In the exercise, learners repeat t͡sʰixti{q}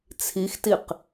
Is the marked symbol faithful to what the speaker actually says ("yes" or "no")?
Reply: yes